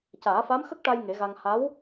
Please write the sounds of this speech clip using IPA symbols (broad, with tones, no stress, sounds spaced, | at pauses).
c aː˨˩˦ f a˧˥ m x ə˦˥ k̚ ʈ a˧ j ŋ e˨˩˦ ɣ a˧ ŋ h a˧˥ w